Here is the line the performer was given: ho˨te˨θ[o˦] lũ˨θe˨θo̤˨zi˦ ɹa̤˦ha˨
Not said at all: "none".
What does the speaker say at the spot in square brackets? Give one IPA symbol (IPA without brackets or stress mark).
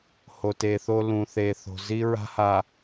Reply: o˦